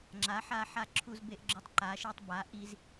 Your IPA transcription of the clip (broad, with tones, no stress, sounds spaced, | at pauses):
ŋ͡ǁ a˩˥ ħ a˧ ħ a˧ ǁʰ u˧ z b e˧ ʔ ɡ͡ǁ ʏ˧ tˤ ǃ a˩˥ ʃ e˧ tˤ b a˩˥ ʔ i˧ z